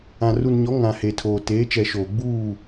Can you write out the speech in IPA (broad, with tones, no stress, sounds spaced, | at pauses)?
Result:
ã˨ r u˨ n ɲ ɔ˨˦ ŋ ã˨ h e˨ tʰ oː˨ t eː˨˦ t͡ʃ ɛ˨ ʃ oː˨ ɡ͡b uː˦˨